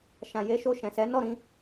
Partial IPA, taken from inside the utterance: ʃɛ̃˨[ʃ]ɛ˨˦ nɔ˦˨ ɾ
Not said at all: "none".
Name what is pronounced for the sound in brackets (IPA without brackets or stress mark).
s